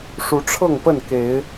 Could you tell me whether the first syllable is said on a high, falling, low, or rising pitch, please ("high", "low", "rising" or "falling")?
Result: rising